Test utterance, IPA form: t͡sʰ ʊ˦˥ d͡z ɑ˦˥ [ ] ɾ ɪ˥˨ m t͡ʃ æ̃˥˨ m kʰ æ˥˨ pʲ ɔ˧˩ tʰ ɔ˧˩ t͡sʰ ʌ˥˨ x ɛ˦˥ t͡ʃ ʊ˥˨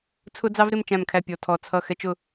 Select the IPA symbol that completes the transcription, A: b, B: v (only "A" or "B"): B